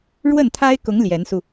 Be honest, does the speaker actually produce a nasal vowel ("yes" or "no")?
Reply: no